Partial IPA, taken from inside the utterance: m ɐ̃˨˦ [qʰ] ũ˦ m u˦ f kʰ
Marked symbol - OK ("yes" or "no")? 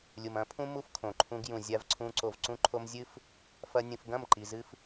no